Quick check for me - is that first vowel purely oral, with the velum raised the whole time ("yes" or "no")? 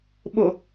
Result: yes